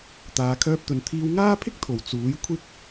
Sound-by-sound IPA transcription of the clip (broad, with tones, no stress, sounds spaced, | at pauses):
t̪ aː˨ kʰ œː˧ p̚ t̪ ɵ˨ n t̪ʰ iː˧ w ŋ aː˥ pʰ ɪ˥ k̚ t̪ʰ o˨˩ w t͡s uː˨˥ j kʷʰ ɪ˥ k̚